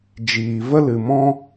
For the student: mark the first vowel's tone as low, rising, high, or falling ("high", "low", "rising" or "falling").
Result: low